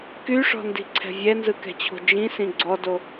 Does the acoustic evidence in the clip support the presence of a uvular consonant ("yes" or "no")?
no